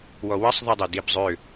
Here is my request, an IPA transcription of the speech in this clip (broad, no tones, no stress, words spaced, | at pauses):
wɔwɐsˤðˤœdˤɐ dibzˤø